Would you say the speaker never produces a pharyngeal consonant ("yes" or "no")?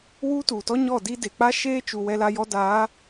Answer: yes